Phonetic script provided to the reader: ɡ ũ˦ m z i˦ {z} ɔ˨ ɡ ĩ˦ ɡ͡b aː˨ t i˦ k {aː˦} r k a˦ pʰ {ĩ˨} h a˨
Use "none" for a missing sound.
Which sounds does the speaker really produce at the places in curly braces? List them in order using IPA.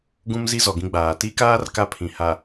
z, aː˦, ĩ˨

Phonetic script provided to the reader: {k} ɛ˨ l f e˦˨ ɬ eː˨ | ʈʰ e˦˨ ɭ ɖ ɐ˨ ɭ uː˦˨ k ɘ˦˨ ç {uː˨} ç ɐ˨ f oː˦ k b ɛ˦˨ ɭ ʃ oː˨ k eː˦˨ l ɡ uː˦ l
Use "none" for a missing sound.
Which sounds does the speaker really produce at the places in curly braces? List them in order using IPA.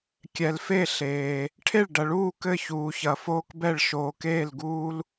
kʲ, uː˨

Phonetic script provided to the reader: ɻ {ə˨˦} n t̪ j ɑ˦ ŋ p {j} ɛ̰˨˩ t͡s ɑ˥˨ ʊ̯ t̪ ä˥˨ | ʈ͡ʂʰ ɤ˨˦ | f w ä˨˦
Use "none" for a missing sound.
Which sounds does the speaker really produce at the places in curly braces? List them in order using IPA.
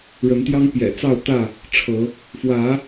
ə˨˦, j

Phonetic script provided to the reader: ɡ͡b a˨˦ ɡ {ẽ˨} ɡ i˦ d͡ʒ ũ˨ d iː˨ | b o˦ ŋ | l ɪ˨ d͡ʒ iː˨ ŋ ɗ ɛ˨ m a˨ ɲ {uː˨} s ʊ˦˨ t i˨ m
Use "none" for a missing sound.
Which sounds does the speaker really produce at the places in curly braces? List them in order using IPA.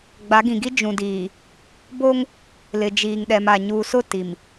ĩ˨, uː˨

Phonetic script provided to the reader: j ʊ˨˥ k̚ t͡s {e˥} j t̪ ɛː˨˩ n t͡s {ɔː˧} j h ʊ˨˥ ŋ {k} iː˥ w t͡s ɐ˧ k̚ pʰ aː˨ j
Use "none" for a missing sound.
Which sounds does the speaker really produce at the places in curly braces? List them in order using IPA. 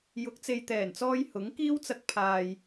e˨, ɔː˧, k

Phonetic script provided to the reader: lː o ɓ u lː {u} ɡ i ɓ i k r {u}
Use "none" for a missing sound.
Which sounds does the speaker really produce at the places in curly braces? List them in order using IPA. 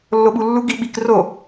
u, o

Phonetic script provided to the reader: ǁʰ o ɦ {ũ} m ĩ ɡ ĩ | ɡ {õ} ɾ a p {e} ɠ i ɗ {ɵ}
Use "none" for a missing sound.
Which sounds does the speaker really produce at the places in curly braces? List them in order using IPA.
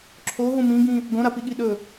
ũ, õ, i, ɵ

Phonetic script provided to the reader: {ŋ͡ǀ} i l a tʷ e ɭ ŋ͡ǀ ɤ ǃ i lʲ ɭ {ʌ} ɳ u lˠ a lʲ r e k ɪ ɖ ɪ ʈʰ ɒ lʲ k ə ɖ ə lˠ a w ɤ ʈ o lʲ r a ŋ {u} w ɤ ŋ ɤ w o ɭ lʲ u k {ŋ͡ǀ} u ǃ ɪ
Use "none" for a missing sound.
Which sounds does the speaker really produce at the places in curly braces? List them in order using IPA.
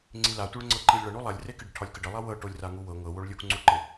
ŋ͡ǀ, ʌ, u, ŋ͡ǀ

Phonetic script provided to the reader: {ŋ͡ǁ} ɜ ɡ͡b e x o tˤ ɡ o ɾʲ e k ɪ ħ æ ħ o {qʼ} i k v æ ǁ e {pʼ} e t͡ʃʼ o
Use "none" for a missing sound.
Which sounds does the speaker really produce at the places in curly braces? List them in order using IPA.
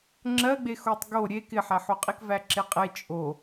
ŋ͡ǁ, qʼ, qʼ

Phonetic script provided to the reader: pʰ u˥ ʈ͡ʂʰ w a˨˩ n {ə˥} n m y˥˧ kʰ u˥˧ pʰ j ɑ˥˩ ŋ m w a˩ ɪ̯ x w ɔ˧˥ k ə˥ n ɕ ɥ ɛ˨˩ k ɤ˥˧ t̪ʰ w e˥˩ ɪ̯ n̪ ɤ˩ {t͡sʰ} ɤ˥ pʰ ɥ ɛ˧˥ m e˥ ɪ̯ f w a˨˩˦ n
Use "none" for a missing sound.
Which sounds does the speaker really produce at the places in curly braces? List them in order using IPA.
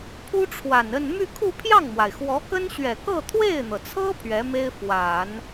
ə˥˧, t͡sʰ

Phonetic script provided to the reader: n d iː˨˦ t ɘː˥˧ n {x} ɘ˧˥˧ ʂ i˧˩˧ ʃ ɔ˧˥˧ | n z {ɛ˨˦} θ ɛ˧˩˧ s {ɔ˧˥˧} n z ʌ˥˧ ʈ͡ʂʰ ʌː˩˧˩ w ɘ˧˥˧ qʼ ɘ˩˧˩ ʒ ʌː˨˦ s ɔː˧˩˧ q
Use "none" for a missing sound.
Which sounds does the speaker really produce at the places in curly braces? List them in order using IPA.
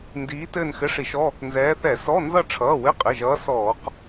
x, ɛː˨˦, ɔ˧˥˧

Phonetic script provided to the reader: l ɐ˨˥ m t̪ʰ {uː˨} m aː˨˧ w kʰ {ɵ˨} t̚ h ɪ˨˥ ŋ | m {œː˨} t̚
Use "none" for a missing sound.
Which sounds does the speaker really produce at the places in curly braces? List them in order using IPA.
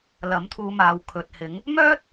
uː˨, ɵ˨, œː˥

